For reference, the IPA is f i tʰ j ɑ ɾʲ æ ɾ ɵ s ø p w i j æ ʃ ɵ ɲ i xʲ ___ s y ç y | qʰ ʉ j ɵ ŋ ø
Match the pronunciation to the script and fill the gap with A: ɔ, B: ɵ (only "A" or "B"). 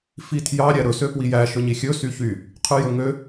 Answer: B